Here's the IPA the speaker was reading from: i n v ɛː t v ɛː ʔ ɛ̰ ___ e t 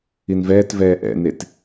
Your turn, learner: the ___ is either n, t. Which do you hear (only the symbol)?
n